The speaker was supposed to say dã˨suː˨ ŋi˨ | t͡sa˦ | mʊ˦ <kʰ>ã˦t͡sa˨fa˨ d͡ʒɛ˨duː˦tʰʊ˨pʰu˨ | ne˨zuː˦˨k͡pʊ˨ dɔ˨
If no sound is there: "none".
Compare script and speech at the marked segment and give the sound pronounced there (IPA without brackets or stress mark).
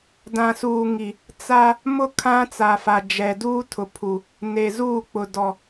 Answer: kʰ